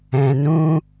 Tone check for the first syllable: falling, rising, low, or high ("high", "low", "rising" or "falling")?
low